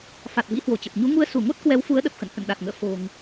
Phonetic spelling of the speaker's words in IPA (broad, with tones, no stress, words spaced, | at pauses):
fa˨˩t̚vḭ˧˥hwo˧˩t͡ɕə˨˩p̚ ɲu˨˦ŋu˧ə̯ su˧˩ŋo˦˥t̚ kwɛ˨˦wfu˨˦ə̯ɗə˨˩p̚xə̰˧˨n hə̰˧˨nɗa˨˩t̚ŋə̰ː˧˨ fo̤˨˩ŋ